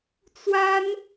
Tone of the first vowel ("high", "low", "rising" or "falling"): high